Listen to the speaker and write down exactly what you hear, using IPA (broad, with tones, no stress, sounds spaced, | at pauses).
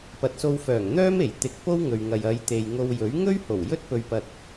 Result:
p ɐ˨ t̚ s o˧ w f œː˨˩ ŋ n̪ œː˥ m e˨˩ j t̪ ɪ˨˥ k̚ p o˥ w ŋ ɵ˨ ɥ ŋ ɐ˨ j ɐ˨˧ j t̪ e˨ j ŋ o˧ w j ɵ˨˥ ɥ ŋ ɵ˥ ɥ h o˨˩ w j ɵ˥ t̚ p ɵ˧ ɥ p ɐ˧ t̚